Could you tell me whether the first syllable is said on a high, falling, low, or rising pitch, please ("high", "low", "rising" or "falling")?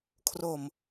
low